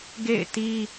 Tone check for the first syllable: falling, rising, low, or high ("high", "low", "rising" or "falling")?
falling